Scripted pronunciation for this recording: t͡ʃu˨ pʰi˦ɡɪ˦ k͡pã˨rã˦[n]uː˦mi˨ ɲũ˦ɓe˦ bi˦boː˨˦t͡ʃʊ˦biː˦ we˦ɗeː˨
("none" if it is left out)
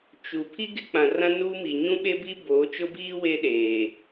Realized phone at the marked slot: n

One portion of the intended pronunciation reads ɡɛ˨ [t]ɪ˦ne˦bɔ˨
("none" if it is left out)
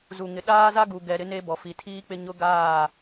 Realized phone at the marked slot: ɾ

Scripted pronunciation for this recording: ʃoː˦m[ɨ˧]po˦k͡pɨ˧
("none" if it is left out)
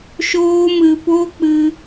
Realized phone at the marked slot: ɨ˧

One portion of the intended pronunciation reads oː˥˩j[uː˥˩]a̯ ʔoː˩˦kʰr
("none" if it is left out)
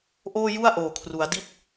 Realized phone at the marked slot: u˥˩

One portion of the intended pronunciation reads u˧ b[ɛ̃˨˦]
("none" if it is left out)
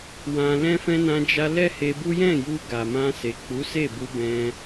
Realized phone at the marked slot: ɛ̃˧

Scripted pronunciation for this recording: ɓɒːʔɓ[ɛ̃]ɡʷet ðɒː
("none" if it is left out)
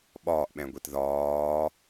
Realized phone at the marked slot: ɛ̃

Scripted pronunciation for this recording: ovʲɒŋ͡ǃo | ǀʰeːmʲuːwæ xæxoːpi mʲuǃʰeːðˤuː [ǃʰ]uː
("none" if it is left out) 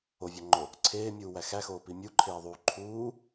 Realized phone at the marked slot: ǃʰ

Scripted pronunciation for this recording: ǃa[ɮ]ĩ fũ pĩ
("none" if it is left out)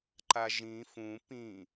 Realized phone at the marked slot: ʒ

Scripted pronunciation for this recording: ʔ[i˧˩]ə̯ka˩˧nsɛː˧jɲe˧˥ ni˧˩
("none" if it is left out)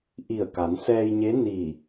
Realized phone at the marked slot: i˧˩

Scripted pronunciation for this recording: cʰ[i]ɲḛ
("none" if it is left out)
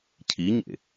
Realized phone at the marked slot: i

